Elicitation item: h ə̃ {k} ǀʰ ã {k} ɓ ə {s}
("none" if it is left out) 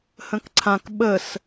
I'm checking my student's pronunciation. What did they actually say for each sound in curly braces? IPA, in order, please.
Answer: k, k, s

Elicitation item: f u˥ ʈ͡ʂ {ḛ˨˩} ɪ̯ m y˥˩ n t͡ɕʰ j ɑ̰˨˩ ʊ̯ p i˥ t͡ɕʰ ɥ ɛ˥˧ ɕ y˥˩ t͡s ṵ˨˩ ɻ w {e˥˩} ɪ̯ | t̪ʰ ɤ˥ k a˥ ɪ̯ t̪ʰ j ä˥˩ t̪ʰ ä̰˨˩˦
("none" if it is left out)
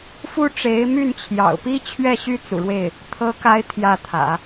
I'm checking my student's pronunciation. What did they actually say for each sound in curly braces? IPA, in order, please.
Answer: e˧˥, e˥˩

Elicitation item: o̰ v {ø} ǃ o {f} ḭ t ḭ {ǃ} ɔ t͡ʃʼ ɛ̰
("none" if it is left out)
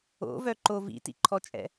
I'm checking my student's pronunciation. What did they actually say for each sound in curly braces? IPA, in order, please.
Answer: œ, v, ǃʰ

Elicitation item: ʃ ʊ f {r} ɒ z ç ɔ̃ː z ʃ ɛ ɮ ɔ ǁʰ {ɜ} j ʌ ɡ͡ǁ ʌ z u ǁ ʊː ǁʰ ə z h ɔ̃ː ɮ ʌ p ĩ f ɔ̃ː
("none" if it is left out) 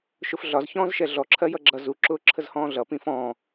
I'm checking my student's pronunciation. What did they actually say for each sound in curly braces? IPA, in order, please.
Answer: ɮ, ɜ

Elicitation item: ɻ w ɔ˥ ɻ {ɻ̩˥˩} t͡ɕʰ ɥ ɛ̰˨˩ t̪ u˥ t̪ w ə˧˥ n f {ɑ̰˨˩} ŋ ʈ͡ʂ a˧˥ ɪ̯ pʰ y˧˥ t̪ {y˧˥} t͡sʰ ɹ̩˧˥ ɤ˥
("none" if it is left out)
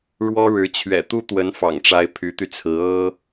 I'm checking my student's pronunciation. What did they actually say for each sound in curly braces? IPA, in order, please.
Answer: ɻ̩˧˥, ɑ̰˨˩, y˧

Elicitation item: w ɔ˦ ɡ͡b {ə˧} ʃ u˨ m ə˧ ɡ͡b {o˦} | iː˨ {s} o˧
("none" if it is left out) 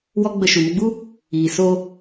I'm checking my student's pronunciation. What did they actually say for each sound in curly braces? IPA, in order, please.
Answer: ə˧, u˦, s

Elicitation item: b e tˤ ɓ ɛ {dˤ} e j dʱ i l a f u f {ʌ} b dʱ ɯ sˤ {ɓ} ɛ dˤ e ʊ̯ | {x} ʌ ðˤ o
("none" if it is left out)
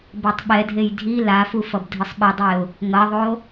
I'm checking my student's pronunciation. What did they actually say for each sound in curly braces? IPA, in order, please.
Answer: dʱ, ʌ, ɓ, ŋ

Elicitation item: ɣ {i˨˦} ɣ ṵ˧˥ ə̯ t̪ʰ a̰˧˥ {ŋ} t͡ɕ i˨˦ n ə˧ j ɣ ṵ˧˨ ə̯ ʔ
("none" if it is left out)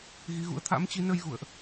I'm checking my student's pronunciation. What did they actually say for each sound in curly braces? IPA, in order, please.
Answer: i˨˦, m

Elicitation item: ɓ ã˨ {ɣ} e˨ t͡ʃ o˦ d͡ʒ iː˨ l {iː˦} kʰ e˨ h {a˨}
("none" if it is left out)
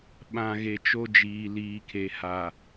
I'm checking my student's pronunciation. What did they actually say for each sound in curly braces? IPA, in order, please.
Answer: ɣ, iː˨, a˨

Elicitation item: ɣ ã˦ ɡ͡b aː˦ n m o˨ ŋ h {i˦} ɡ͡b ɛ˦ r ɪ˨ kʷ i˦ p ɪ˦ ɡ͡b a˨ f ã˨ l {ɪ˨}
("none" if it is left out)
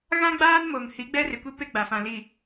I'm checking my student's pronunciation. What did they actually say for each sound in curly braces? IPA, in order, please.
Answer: i˨˦, i˨

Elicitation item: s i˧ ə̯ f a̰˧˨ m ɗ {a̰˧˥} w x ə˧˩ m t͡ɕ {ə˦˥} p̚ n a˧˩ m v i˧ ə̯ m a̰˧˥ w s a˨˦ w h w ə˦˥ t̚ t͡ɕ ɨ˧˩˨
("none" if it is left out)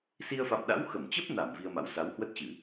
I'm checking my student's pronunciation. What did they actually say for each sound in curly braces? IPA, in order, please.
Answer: a̰˧˥, ə˦˥

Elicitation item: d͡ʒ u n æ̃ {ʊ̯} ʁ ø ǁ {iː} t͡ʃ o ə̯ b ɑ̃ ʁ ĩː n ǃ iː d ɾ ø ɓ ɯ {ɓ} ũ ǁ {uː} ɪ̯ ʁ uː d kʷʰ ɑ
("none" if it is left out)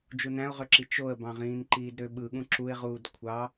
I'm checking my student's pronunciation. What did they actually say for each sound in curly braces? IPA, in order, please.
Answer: ʊ̯, i, ɠ, u

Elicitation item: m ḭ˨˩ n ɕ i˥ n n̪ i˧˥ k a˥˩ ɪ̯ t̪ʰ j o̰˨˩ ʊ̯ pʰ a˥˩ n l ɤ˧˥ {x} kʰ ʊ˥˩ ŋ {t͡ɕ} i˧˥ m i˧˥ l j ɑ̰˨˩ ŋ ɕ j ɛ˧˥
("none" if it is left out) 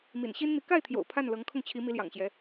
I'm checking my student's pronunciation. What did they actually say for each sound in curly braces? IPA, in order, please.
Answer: ŋ, t͡ɕʰ

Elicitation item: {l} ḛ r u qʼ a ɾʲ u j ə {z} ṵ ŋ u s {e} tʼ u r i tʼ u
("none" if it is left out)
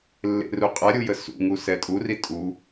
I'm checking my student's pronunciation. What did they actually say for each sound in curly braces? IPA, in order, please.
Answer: lː, s, ɛ

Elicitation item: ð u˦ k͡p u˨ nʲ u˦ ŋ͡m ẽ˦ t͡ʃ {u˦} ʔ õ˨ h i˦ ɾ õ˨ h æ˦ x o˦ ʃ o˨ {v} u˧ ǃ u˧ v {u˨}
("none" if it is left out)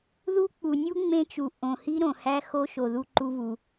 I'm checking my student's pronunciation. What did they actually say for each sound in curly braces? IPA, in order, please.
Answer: u˨, ð, u˨

